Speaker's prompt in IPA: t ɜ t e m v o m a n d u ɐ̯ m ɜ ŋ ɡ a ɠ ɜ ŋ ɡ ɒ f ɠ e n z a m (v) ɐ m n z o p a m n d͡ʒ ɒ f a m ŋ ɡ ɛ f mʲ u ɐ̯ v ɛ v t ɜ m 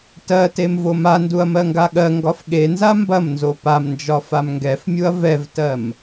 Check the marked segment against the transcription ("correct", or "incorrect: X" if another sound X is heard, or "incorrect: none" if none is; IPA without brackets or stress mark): incorrect: b